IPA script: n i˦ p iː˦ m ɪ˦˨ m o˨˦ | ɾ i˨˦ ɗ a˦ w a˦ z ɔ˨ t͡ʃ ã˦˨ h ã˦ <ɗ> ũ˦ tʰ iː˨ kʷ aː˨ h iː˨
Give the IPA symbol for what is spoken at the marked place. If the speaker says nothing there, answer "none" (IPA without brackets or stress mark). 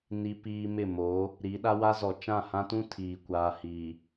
t